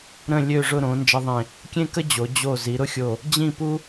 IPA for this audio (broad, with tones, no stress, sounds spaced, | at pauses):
ɾ ə̃˥˧ lʲ ø˥˧ ʐ ʊ˥˧ ɾ õ˩˧ n d͡ʒ ə˧ ðˤ ẽ˧˩ | kʲ ẽ˥ k ə˥ d͡ʑ o˩˧ d͡ʑ o˧˩ z i˩˧ ɾ ʊ˥˧ xʲ o˧˩ | d͡ʑ ĩ˥˧ p u˥